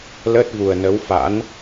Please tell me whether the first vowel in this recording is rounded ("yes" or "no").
no